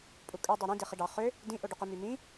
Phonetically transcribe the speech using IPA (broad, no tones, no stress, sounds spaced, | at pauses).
pʼ u kʼ ø dˤ ø ɾ ĩ d e χ i ɖ ɑ χ ø | d ĩ ʔ o ɖ u q ø m y m ĩ